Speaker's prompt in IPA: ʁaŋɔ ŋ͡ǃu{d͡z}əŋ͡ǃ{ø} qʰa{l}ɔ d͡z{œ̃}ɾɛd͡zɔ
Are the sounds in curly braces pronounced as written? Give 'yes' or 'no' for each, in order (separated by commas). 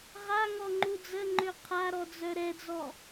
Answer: yes, yes, no, no